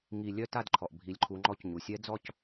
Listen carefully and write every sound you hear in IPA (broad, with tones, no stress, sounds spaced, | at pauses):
ŋ i˥˧ lʲ œ˥˧ t a˥˧ d ǃʰ ɔ˩ ʔ bʱ i˨˦ lʲ ǃʰ u˨˦ ŋ͡ǃ ɔ˥˧ c ɲ u˩ sʲ ɛ˦˥ d͡z ɔ˥˧ c